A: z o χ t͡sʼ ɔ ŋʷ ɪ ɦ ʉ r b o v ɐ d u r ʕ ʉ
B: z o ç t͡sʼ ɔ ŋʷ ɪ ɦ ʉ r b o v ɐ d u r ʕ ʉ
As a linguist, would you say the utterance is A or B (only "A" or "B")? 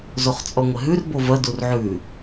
A